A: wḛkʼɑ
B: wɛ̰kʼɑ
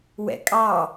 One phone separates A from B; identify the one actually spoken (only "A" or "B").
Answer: B